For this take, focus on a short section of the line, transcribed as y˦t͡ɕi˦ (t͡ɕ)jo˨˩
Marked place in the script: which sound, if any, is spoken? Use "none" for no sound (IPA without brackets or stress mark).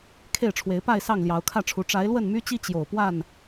t͡ɕ